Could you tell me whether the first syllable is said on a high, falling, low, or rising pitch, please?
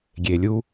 low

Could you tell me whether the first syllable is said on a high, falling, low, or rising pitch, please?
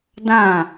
falling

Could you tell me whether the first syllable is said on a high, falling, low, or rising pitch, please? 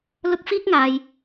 high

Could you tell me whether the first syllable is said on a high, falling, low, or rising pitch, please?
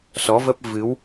rising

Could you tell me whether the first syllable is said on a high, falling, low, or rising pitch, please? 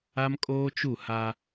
high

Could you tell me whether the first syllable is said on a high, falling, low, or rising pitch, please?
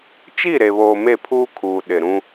falling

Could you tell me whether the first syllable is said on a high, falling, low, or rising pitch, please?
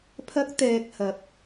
high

